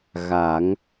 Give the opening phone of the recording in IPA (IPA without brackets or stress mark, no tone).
ɣ